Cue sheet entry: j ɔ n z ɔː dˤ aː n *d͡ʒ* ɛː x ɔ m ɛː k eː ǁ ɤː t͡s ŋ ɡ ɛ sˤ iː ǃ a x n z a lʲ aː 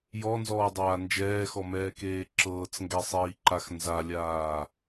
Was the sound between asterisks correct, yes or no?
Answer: yes